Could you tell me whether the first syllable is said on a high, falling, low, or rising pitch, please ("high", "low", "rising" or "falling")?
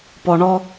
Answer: low